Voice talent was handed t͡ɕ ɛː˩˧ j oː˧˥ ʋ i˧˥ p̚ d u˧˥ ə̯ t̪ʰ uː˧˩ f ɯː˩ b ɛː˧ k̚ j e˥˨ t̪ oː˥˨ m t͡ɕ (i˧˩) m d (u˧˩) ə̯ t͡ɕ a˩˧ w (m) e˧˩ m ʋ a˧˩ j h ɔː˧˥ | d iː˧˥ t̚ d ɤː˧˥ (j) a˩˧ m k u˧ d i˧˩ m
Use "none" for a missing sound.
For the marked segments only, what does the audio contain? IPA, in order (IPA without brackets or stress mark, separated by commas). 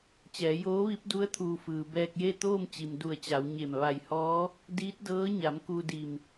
i˩, u˧˩, ɲ, ɲ